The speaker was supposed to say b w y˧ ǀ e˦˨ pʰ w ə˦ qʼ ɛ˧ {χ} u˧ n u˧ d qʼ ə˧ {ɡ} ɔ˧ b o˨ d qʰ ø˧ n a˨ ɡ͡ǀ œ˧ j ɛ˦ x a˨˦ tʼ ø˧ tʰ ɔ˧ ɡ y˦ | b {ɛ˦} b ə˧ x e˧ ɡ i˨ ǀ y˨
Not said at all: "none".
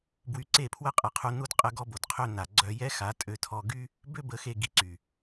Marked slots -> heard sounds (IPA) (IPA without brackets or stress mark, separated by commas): qʰ, ɡ, ø˦